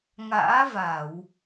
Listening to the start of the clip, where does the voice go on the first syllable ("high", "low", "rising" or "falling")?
rising